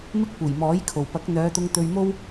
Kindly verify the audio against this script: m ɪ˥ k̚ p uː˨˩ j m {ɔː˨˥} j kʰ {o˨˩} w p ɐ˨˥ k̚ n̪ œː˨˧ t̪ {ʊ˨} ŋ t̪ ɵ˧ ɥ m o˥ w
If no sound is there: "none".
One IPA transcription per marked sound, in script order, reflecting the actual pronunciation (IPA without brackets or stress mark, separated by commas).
ɔː˨˥, o˨˩, ʊ˧